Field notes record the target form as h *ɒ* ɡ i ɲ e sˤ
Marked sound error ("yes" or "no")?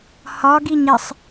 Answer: no